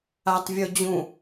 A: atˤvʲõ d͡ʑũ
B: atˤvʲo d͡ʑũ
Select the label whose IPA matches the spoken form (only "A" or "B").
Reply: B